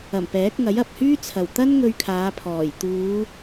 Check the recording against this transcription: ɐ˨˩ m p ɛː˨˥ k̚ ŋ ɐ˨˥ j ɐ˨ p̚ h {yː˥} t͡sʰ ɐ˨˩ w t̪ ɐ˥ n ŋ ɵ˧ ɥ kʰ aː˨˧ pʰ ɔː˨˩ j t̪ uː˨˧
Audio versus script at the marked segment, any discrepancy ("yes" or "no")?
no